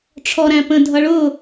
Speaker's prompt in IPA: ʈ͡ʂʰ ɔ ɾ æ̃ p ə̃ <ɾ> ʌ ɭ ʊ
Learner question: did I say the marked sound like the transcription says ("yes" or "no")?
no